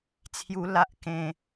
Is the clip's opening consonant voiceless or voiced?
voiceless